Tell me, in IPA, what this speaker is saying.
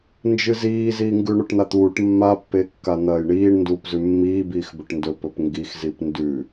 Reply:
nd͡ʒɨziːziː ŋɡʉɳoʈn̪at̪uːʈ mːapːe kːan̪ɐːjɳiːɳ nduːpzʉmːiː biːxbɵʈndɵ pɵpŋɡixzip ndʉ

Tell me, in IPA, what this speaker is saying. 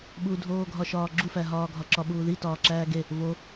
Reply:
ɓudʱoːɡʱɒʃɒː ɡ͡ǁufæɦɒːɡʱɒ ǁɒɓuːði tɒːǁæːɡe | vo

